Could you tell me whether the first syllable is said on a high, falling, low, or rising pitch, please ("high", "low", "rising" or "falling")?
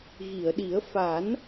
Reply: low